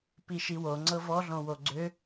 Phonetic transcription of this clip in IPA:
p i ʃ i w o ŋ͡ǀ ɤ v ɔ ɮ õ w o ɡ͡ǀ ʏ

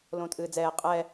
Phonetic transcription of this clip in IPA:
l õː t ʔ ɨː d͡z ɛː qʼ ɛ

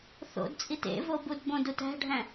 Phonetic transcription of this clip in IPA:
θ o̰ d t͡sʼ i t ḛ v o b u d b õ d u t æ̤ ɖʱ æ̃

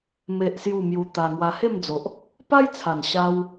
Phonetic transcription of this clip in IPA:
m e˦ ʔ s j u˥˧ m j u˧ t̪ a˧ ŋ w a˧ h e˥˧ m d͡z o˨ ʔ | p a˦ j t͡sʰ a˨˩ n ɕ a˧ w

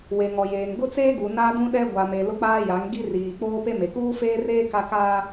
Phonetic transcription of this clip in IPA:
w e˨ ŋ ɔ˨ j eː˨ ŋ ɡ ʊ˦ t͡s eː˦ ɡ u˨ n a˦ d ũ˦ ɗ ɛ˦ ɡʷ a˨ m e˨ l ʊ˦ k͡p aː˦ j a˨˦ ŋ ɡ i˦ r iː˨ k͡p oː˦ p e˦ m e˨ k uː˦ f eː˦ r eː˦ k a˦ k aː˦

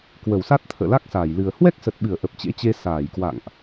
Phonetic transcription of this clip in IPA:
k w ə˧˩ w s a˦˥ t̚ t̪ʰ ə̰ː˧˨ l a˦˥ k̚ s aː˧˩ j l ɨ˨˩ ə̯ h w ɛ˦˥ k̚ s ə˨˩ t̚ ɓ ɨ˧˩ ə̯ ʔ ə˨˩ p̚ t͡ɕ ḛ˧˥ t͡ɕ e˧ s aː˧˩ j k w a̰˧˨ ŋ ʔ

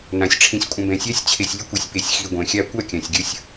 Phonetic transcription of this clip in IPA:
n ã˨ sʲ ʈ͡ʂʰ ĩ˨ sʲ kʷʼ ə̃˨ b ɛ̃˨ sʲ a˦ sʲ t͡ɕʰ e˨ sʲ lʲ ə˦ kʷ i˨ sʲ p e˨ sʲ x i˨ ɡʷ ɛ̃˨ xʲ a˦ kʷ a˦˨ kʲ ã˨ sʲ ɡʲ ə˦ sʲ

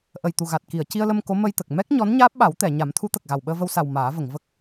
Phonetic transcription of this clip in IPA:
ʔ ə˨˩ j t̪ u˨˩ ɣ a˨˩ t̚ k i˨˩˨ ə̯ c i˧ ə̯ l ə˧ m k o˧˥ m ə˧ j t̪ ə˨˩ k̚ m ɛ˦˥ k̚ ɲ ɔ˧˥ n ɲ aː˦˥ p̚ ɓ a˨˩˦ w t̪ ɛ˨˩˨ ɲ a˨˩˦ m t̪ʰ u˧˥ t̪ ə˨˩ k̚ ɣ a˨˩ w ɓ əː˧ v ə˧ w s a˨˩ w m aː˨˩˦ v ə˨˩˨ ŋ v ə˦˥ k̚

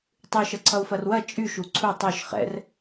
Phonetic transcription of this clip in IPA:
tˤ ʉ ʃ ʌ ǀʰ ʌ u̯ f ɐ r w ɐ t͡ʃʼ y ʃ u ǀʰ u tˤ o ʃ χ ɛ̰ r

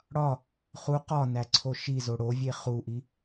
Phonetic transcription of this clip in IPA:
ɽ ɒ | χ u q ɒ n æ ǀʰ o ʃ i z o ɽ o vʲ e χ u ʔ i

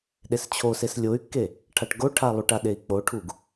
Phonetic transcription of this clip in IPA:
ɗ e s t͡ɕʰ o s e s lʲ o y̯ kː e | ʈʰ a ʈ ɡ o ʈʰ a lˠ u ʈ a ɗ e i̯ k͡p o ʈʰ u ɡ

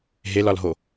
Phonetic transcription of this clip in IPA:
ɦ e l ɒ l ɦ o

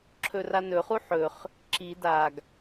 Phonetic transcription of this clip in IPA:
ǁʰ ɵ r a n ɵ χ u ħ ɵ χ | ǁ i d a ɡ

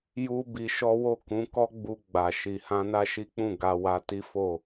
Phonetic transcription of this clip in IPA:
j u˦ b i˧ ʃ ɔ˦ w o˦˨ k ũ˨˦ k ɔ˦ ɡ͡b u˧ ɡ͡b a˨ ʃ i˨ h ã˧ n a˦ ʃ i˦ k͡p ũ˦˨ ɡ a˧ w a˧ t i˦ f o˦˨

